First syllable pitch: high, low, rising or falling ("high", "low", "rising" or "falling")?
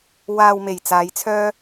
low